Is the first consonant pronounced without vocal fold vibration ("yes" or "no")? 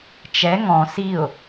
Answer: yes